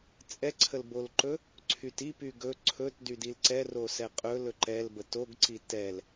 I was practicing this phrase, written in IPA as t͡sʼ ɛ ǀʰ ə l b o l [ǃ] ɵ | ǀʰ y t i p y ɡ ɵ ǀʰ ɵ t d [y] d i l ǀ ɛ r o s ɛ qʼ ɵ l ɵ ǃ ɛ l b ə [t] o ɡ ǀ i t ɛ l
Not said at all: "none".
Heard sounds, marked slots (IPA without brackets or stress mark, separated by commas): ǃ, y, t